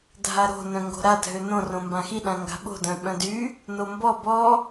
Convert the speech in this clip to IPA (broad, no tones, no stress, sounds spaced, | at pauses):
dʱ a ɾ o̤ n œ̃ ŋ ɡ o̤ ɾ a dʱ ø n õ r õ m b ã x i ɗ ã ŋ ɡ a̤ ɓ o̤ d œ̃ ɓ œ̃ d y | n o m b ɔ b ɔ